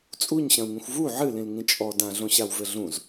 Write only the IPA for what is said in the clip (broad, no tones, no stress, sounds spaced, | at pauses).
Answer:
t͡sʼ u ɲ ɕ ɐ̃ u̯ ŋ ĩ xʷ v u ʕ ɨ l ĩ l ŋ ĩ t͡ʃʼ ɔ d ã ɮ õ ɕ a w v ɘ ɮ ũ z